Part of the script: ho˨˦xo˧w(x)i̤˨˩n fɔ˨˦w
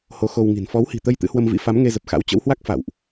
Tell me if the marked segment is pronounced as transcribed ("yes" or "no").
no